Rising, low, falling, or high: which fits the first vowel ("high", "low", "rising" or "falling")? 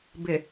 low